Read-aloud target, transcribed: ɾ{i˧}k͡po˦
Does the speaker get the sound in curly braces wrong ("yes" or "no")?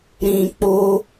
yes